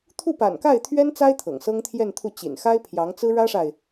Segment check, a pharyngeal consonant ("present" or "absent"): absent